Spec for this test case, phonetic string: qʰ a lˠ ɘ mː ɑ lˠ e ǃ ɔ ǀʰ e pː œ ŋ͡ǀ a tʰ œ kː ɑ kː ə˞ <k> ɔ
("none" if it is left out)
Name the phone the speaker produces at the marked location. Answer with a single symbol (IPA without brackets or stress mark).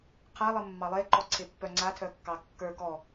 k